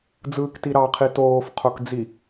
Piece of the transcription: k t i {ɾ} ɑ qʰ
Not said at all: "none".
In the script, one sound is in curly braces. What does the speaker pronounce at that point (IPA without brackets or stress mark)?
ɾ